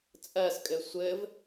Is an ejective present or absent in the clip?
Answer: present